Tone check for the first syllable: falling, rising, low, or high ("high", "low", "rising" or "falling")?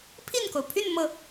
falling